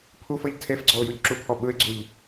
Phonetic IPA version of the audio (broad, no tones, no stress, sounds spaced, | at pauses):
pʰ u f ɤ ʎ tʰ e f ɡ͡ǀ ɔ ʊ̯ j u ʎ ǁ u pʰ ɔ ɓ ɯ ɪ̯ ɡ͡ǀ u ʎ